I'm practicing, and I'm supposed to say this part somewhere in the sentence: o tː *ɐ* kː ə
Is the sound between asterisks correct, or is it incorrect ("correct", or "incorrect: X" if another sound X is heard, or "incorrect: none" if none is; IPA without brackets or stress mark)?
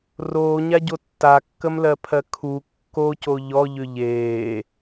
incorrect: a